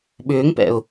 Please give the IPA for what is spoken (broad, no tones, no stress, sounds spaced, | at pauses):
ɓ ʏː ŋ p ɛ̰ ʊ̯